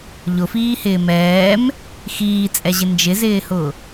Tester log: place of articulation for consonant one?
palatal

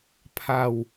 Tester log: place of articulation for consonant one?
labial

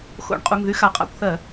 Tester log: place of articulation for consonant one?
velar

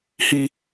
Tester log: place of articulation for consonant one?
glottal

